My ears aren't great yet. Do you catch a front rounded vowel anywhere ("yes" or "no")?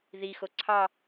no